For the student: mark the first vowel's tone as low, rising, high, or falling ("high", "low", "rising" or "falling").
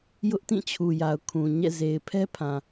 high